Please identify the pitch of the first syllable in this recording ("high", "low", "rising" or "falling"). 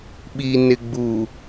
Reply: low